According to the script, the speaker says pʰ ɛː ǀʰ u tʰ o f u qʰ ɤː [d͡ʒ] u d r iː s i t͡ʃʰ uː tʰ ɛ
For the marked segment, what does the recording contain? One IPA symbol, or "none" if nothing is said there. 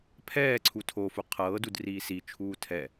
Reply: d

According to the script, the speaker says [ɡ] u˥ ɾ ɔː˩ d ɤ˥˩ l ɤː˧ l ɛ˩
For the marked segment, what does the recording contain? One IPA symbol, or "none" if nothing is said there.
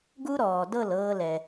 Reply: ɡ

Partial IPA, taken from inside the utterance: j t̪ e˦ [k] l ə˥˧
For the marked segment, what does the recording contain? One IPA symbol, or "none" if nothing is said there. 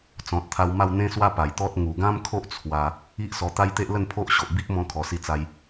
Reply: ʔ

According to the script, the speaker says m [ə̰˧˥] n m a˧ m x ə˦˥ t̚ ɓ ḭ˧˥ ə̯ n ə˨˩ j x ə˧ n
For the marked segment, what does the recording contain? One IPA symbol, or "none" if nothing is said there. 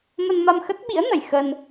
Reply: ə˧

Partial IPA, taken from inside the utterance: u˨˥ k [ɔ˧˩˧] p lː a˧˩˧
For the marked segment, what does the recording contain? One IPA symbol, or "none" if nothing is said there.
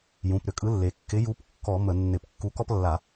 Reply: ɔ˦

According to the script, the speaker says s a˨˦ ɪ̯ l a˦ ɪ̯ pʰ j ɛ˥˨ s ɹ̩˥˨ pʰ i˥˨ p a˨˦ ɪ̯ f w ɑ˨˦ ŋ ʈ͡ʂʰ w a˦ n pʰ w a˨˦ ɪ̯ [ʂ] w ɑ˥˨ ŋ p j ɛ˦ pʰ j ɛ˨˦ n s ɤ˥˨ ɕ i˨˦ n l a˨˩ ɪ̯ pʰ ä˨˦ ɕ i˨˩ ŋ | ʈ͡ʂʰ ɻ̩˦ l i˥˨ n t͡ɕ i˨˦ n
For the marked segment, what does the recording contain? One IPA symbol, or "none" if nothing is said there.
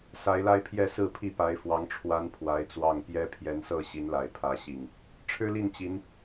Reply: t͡s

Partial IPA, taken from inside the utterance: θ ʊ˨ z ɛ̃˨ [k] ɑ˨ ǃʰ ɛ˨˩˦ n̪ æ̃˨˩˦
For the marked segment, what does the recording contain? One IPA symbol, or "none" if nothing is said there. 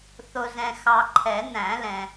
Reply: x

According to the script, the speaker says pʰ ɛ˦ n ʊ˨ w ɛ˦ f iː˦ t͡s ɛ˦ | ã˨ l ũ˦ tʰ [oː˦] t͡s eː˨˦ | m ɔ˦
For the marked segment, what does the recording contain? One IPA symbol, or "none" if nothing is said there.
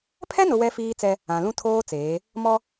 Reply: oː˦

